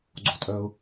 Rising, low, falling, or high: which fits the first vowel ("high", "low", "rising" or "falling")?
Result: low